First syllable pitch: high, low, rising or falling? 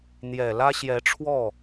low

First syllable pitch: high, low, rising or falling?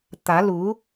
rising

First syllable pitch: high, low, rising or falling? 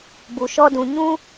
low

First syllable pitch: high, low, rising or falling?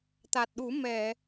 low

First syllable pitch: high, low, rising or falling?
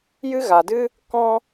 high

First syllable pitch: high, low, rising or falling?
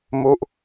falling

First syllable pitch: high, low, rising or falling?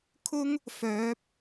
high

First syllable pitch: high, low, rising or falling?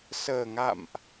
low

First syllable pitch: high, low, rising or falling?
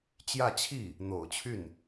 falling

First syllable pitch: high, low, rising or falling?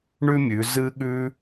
high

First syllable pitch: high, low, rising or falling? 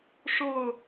falling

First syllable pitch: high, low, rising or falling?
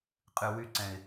low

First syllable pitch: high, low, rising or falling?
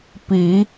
low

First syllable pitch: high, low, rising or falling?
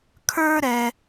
high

